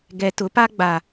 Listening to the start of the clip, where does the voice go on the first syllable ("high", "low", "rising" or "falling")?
low